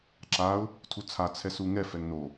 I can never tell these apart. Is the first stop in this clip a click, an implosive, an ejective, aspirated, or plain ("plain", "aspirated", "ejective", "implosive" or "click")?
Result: click